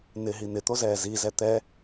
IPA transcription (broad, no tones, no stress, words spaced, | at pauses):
nɪɦi n̪ɪt̪ozɛː zizɛ t̪ɛ